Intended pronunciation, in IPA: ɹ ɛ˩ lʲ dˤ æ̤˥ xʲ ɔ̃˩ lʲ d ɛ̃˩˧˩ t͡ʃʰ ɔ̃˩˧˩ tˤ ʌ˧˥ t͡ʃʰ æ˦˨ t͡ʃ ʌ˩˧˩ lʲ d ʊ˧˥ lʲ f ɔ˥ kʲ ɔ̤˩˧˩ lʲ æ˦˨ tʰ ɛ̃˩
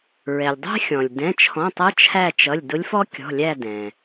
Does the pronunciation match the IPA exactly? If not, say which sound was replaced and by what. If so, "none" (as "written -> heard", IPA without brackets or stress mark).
tʰ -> d